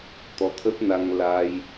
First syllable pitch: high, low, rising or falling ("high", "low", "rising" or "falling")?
rising